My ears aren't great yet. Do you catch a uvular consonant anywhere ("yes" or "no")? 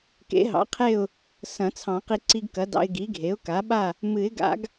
yes